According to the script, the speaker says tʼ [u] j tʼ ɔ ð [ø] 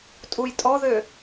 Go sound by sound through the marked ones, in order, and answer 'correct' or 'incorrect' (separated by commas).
correct, correct